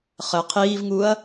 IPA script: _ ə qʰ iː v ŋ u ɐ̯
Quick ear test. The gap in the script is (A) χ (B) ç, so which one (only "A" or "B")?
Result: A